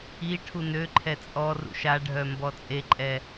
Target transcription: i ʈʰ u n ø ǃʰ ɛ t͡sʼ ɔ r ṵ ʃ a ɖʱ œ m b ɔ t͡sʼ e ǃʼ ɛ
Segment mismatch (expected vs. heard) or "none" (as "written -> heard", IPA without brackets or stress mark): none